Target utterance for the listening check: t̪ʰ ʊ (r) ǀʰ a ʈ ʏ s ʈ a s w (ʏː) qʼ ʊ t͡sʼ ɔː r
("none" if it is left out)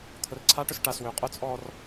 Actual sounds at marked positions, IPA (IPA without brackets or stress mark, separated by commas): r, ʏː